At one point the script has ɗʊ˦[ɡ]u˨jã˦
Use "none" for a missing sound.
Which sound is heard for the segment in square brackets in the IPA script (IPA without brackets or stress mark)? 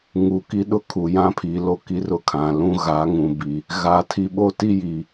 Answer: kʰ